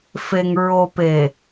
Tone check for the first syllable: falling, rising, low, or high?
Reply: low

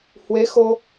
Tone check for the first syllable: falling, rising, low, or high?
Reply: rising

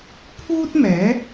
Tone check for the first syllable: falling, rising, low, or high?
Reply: high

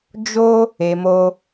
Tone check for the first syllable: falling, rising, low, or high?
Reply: high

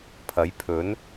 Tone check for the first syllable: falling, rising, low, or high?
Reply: rising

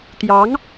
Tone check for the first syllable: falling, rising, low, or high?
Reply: rising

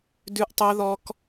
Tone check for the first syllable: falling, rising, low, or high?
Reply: high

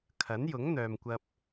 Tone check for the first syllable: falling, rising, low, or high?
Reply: rising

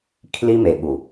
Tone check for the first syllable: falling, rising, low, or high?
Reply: high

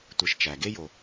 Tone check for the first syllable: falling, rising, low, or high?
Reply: low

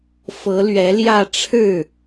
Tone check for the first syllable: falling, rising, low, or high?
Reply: rising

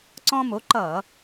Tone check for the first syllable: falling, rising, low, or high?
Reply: high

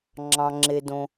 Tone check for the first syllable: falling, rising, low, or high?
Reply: low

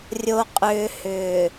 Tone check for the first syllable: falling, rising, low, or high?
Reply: low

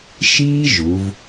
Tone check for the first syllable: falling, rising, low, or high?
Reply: high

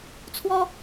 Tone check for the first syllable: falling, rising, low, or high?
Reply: high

